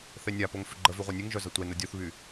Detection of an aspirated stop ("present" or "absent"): absent